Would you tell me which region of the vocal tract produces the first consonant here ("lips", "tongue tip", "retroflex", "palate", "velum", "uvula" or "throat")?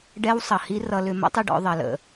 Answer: retroflex